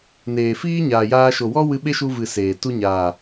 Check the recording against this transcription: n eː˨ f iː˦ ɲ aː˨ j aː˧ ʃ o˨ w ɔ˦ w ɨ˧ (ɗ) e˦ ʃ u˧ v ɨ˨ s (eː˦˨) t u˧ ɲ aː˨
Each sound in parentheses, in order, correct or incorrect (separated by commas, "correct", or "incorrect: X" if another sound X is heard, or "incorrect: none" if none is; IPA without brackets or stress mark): incorrect: ɓ, incorrect: eː˨